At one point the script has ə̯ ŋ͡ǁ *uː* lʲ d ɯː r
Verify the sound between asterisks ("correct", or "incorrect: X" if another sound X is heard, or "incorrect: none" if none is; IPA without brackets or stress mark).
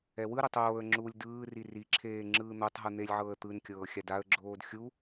correct